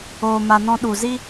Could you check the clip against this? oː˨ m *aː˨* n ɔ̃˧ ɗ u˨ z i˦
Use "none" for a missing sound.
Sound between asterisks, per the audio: a˨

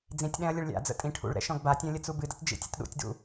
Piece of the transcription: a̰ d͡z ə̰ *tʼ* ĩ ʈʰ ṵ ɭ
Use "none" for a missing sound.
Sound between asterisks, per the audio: tʼ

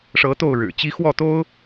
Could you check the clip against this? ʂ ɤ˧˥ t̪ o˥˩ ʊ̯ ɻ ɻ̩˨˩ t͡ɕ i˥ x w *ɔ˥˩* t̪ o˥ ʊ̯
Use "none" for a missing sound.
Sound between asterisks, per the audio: ɔ˥˩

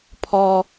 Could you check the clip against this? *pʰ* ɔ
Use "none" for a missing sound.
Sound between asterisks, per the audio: pʰ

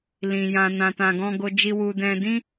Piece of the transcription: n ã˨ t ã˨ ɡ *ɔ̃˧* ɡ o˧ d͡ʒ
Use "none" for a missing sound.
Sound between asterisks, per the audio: ɔ̃˧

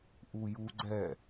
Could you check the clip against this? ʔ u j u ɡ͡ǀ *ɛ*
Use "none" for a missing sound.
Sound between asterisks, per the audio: ɛ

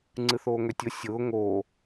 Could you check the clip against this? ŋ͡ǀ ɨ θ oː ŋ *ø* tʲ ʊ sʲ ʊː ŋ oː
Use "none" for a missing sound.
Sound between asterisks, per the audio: ø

